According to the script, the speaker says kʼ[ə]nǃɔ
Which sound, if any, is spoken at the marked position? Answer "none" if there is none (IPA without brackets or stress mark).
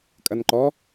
ɐ